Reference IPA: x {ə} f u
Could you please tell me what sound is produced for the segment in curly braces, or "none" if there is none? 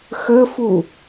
ə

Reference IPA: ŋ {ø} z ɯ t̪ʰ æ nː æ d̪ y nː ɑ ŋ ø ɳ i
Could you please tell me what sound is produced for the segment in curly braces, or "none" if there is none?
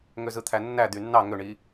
ø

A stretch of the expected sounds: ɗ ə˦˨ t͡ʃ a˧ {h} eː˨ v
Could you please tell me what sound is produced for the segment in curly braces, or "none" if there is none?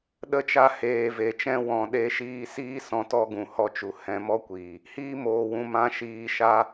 h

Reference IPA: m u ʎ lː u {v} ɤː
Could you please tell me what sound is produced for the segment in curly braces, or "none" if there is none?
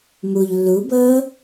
b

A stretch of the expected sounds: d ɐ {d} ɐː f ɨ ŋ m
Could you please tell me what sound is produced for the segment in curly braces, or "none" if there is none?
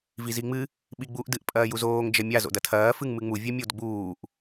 tʰ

